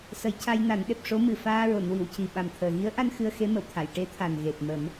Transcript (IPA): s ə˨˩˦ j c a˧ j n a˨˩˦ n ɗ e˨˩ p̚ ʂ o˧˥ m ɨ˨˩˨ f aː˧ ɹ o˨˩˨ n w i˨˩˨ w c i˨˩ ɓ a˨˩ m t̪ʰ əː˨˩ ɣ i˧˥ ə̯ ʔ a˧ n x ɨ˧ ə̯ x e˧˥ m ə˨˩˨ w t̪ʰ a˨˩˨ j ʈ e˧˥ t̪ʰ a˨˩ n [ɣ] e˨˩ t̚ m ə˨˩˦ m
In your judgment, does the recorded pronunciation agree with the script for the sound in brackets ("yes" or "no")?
yes